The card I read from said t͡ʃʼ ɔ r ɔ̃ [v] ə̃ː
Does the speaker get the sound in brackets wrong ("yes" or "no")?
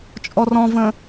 no